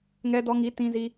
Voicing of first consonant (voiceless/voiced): voiced